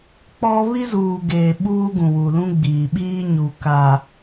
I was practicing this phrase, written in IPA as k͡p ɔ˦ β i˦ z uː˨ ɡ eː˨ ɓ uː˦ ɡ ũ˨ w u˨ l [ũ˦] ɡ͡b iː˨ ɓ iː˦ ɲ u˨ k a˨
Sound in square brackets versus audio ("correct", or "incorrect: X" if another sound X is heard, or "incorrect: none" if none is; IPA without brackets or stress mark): correct